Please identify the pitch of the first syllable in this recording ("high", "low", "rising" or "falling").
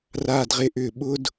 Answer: low